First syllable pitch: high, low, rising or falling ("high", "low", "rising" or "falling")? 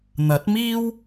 rising